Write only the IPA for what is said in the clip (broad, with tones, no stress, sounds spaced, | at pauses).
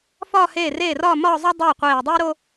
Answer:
f ɒː˥˧ h eː˥˩ r eː˥˩ r ɒː˥˧ m ɒː˥˧ zˤ o˥ dˤ eː˥˩ qʷ eː˧˩ dˤ iː˥ ɾ o˥